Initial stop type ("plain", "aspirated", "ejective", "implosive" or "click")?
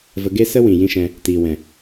plain